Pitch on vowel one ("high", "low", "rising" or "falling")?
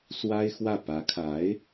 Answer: high